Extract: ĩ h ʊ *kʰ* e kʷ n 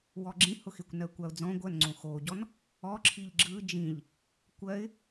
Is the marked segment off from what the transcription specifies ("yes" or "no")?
yes